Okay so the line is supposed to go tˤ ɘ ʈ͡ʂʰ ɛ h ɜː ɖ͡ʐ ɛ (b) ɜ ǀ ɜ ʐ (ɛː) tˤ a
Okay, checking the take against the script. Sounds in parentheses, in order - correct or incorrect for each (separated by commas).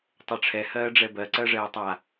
correct, correct